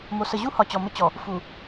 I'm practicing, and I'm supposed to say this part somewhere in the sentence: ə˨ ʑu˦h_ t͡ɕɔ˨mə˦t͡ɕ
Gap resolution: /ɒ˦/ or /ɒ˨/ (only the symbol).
ɒ˨